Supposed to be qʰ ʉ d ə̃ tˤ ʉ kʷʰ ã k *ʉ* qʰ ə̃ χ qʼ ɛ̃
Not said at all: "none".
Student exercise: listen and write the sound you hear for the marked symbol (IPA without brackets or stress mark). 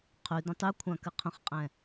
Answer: ɨ